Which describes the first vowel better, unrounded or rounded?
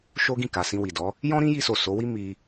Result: rounded